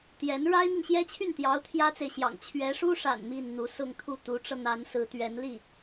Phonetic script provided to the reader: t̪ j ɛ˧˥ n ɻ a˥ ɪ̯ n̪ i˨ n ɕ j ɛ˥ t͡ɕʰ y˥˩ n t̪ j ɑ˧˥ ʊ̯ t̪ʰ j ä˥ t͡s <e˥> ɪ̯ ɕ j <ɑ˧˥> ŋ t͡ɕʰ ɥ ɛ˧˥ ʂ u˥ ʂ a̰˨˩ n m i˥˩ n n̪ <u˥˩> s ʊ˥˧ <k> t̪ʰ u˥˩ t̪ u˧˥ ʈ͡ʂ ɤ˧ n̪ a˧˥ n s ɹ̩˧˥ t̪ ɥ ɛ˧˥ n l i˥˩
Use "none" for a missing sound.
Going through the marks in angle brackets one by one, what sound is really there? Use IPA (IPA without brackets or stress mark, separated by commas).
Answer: e˨, ɑ̰˨˩, u˧˥, ŋ